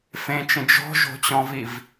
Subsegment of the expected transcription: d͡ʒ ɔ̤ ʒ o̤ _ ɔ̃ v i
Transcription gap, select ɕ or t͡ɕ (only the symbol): t͡ɕ